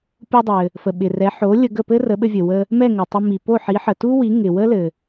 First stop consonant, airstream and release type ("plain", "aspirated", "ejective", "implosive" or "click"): plain